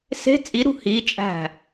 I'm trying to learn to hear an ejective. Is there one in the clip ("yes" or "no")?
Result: yes